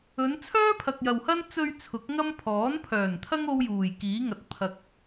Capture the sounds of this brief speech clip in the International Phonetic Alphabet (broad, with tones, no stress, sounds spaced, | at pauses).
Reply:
ɵ˨˧ n t͡sʰ œː˥ pʰ ɐ˨ k̚ j ɐ˨ w h ɐ˥ n t͡s ɵ˧ ɥ t͡sʰ ʊ˨˥ k̚ ŋ ɐ˥ m pʰ ɔː˨˥ n pʰ œː˨˩ n t̪ʰ ɐ˥ ŋ o˥ w j uː˨˩ j k iː˨˥ ŋ ɐ˧ t̚ pʰ ɐ˧ k̚